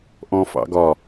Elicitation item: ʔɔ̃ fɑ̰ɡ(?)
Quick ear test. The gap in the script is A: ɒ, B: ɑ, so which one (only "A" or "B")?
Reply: A